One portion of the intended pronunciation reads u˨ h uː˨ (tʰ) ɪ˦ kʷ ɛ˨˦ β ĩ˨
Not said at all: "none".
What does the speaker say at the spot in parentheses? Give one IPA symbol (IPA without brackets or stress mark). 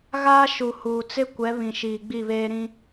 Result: t͡s